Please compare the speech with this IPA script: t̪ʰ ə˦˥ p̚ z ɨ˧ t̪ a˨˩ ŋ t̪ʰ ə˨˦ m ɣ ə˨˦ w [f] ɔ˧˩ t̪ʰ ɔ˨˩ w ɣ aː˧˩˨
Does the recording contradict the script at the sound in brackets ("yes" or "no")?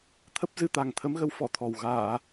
no